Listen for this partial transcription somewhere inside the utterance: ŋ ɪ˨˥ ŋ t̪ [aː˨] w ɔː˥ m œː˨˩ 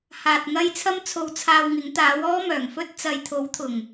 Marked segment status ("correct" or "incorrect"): incorrect